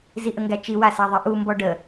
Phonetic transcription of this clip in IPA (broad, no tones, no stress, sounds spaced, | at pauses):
z i ʔ ə ŋ ɡ æ t͡ʃ i w a s æ ðˤ i ʔ u m b ɔ ɖ ə